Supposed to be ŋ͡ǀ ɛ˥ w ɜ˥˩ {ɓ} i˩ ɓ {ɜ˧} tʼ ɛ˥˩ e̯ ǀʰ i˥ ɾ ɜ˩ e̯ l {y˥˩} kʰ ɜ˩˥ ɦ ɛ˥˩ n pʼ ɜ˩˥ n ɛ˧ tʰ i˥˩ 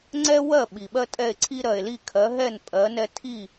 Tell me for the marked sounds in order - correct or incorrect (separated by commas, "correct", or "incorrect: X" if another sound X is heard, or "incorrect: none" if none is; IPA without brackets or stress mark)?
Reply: correct, incorrect: ɜ˥, incorrect: i˥˩